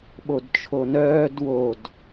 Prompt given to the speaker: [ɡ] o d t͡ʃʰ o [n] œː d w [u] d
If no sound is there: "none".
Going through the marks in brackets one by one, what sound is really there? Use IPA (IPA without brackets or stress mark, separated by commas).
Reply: ɓ, n, o